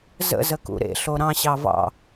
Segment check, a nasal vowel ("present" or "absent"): present